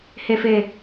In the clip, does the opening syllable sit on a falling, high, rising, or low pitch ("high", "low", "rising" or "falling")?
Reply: low